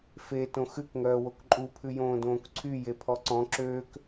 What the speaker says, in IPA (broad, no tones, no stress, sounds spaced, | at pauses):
f e t õ x ʉ k ŋ œː w o k ǃʼ u pʰ ʉ j õː d õː k ǀʰ y j e pʰ ɔ ǀ ɔ̃ ǁ øː k